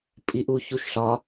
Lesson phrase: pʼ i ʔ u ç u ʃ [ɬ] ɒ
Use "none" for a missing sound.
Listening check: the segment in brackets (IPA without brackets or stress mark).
ɬ